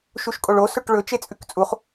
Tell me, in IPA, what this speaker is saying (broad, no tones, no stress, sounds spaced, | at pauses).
ʃ u ʃ kʼ o ɭ o s ɵ ʈ ɭ ɵ t͡ʃ e t͡sʼ ʉ k t͡sʼ u χ